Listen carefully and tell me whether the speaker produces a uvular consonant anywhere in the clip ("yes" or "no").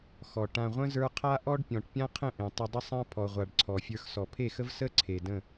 yes